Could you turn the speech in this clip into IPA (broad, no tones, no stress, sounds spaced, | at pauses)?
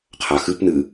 qʰ a x ɨ p n ɨ